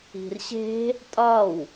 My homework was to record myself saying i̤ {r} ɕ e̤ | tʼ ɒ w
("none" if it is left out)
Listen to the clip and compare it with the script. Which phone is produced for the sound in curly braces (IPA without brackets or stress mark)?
r